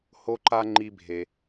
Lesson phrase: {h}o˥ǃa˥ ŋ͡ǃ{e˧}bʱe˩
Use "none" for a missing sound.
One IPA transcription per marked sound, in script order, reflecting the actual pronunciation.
h, i˧

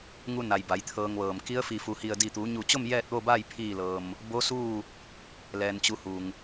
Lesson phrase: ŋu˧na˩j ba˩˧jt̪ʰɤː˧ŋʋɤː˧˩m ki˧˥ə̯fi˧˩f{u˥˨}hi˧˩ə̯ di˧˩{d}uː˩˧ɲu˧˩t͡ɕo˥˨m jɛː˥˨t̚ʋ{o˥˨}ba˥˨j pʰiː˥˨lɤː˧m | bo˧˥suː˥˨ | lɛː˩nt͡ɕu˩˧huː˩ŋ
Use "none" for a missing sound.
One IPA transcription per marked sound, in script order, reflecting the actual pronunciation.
u˩˧, t̪, o˥˨

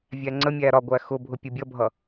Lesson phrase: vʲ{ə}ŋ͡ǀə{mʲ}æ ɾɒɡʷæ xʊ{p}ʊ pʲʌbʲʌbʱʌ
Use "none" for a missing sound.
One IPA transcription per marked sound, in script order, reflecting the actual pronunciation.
æ, mʲ, bʱ

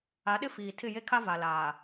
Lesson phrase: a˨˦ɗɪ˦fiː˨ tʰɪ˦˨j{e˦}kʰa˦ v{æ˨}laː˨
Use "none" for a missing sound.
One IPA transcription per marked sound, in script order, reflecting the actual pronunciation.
e˦, a˨

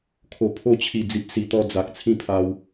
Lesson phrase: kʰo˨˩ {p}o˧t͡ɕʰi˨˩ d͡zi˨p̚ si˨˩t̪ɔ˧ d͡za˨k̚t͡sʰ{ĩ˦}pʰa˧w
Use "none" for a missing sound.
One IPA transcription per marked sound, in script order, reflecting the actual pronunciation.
pʰ, ĩ˦

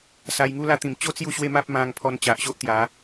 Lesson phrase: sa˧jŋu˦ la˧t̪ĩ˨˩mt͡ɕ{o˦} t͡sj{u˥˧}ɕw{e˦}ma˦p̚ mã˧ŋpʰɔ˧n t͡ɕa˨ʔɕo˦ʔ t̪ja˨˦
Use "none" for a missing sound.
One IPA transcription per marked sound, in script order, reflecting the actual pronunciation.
o˦, u˥˧, e˦

